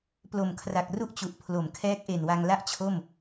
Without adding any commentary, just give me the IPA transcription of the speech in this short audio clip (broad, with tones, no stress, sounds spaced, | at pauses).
p l o˨˩ m kʰ r a˨˩ k̚ r u˥˩ ʔ t͡ɕ u˨˩ ʔ pʰ l o˩˦ m kʰ ɛː˦˥ k̚ ʔ e˨˩ n w a˧ ŋ l a˥˩ ʔ t͡ɕʰ o˥˩ m